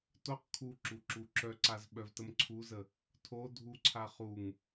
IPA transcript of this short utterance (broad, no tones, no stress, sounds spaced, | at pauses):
t o q kʰ u ǁ u ǁ u ǁ œ ǀ a z ɓ œ v t ə m ǀʰ u z ə | tʰ o dʱ u ǀʰ a χ u ŋ